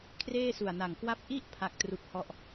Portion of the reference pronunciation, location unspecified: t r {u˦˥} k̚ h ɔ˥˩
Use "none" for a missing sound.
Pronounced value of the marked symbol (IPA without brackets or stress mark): u˦˥